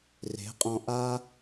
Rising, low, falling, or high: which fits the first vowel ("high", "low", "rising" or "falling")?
rising